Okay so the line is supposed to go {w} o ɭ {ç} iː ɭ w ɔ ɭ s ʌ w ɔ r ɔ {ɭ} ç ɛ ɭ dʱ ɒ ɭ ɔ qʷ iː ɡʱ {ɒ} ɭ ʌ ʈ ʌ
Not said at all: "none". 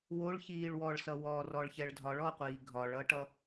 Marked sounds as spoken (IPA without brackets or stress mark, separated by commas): w, ç, ɭ, ɒ